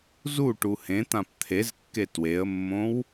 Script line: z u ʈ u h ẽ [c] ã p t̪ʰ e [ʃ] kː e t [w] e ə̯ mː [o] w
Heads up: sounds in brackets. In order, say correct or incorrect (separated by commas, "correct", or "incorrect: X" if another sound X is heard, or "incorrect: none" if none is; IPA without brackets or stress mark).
incorrect: t̪, incorrect: z, correct, incorrect: õ